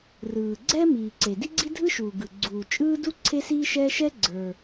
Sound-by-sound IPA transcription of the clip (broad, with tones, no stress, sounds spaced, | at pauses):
r ɯː˩ ɡ͡ǀ ɛ˥ m iː˩ ǀ e˩ d i˥ ɡ͡ǀ i˥ dʱ ɯ˥ ʃ uː˩ ɡ ɯ˩ ɡ͡ǀ uː˩ t͡ʃʼ ɯː˥ d u˥ ǀʰ e˥ s iː˥ ʃ ɛː˥ ʃ ɛ˥ ɡ͡ǀ ə˞˩